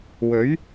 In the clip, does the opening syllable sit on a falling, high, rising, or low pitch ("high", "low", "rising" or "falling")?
rising